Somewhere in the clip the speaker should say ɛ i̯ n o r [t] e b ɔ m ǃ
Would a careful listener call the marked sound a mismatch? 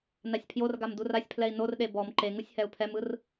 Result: yes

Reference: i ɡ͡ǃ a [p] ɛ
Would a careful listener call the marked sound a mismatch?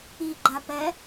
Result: no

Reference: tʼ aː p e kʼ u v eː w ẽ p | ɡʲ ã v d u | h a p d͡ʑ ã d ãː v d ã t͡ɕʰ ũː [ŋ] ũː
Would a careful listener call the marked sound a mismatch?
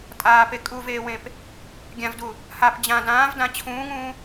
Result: no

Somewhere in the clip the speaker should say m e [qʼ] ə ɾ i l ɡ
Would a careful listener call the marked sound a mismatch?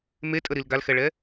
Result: yes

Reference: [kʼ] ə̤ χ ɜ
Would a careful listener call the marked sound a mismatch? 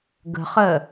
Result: yes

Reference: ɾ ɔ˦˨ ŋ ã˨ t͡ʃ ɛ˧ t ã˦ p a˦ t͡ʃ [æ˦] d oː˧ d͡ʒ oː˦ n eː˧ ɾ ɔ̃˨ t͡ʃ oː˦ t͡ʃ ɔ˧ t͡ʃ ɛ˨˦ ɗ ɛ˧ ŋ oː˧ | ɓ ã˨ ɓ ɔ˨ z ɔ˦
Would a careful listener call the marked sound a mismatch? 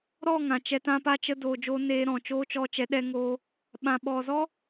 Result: yes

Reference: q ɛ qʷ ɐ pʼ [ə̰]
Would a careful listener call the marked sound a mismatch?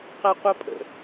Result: no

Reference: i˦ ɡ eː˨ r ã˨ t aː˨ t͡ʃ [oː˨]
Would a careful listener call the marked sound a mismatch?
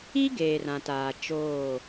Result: yes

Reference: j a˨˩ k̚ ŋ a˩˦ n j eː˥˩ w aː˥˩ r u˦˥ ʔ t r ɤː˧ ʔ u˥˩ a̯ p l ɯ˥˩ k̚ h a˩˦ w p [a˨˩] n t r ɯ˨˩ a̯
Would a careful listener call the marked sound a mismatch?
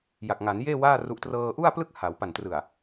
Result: no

